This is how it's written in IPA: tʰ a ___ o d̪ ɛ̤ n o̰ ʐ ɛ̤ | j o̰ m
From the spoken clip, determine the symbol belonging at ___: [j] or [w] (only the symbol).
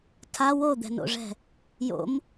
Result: w